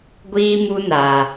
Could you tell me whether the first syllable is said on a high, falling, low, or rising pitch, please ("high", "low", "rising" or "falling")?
high